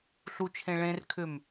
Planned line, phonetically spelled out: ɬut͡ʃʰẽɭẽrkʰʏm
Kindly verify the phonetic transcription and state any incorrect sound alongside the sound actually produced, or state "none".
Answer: none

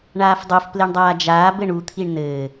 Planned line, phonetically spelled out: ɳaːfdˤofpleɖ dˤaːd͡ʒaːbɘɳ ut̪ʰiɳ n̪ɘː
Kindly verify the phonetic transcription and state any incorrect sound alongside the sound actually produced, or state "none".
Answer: ɖ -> ɳ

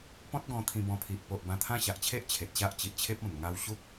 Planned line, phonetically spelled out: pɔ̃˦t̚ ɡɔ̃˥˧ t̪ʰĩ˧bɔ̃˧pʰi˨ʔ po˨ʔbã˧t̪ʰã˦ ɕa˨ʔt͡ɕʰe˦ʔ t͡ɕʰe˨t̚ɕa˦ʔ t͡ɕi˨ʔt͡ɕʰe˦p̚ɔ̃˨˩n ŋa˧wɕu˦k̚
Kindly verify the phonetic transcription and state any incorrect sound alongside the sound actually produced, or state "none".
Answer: none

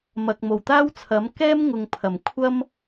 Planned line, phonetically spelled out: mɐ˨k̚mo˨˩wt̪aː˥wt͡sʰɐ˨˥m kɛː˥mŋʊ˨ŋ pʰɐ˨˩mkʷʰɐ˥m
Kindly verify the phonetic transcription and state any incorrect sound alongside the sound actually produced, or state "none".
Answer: none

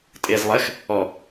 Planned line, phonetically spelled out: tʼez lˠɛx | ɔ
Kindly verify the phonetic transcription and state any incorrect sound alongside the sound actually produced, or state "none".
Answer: none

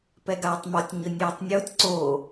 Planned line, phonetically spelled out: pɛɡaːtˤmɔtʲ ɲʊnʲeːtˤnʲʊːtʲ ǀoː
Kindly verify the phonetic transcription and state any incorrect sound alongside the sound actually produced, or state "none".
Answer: none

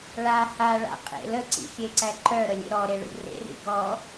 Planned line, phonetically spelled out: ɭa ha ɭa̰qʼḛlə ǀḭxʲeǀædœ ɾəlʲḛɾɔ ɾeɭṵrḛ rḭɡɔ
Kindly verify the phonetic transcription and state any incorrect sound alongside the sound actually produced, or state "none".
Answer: d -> ǃ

